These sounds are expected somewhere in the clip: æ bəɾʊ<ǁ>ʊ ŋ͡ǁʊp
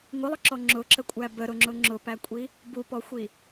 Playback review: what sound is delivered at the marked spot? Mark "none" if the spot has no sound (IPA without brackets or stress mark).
ŋ͡ǁ